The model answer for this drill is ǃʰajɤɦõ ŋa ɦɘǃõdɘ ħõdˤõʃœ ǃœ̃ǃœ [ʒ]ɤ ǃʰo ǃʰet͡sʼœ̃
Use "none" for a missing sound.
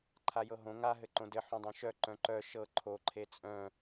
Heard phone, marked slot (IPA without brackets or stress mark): ʃ